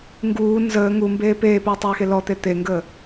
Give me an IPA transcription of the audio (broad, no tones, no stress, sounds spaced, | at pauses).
ŋ ɡ uː n z əː ŋ u m b eː p eː p øː tˤ øː x e l ɔ t̪ e t̪ e ŋ ɡ əː